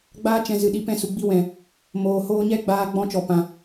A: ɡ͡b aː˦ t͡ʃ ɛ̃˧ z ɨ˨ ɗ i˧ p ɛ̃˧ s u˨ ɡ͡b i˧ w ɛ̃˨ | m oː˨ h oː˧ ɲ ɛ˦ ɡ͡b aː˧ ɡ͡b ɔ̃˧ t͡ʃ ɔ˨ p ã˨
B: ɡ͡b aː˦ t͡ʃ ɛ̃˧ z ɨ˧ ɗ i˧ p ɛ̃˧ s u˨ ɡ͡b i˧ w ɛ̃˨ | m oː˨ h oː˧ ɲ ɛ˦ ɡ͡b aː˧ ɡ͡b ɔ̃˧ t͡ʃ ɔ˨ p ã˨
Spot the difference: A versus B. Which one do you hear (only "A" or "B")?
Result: A